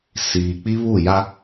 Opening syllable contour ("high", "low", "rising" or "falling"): low